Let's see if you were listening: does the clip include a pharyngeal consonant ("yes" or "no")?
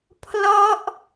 no